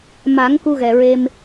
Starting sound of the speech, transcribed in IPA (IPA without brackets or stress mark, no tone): m